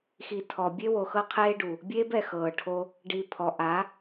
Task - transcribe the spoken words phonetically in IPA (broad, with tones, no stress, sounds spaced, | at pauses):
x i˨ tʰ ɔ˨ bʲ e˦ w o˨ x ɤ˦ qʰ eː˦ ɖ u˨ | bʲ eː˦ b ɛ˨ x ɤː˨ ʈʰ o˦ | ɖ i˨ pʰ ɔ˨ ʔ a˨˦